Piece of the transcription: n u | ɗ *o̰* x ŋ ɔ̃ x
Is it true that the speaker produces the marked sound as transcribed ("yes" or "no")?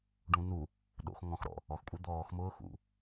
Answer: yes